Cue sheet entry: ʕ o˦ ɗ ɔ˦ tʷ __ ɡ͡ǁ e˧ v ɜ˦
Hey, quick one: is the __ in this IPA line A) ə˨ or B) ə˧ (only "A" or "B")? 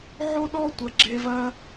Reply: A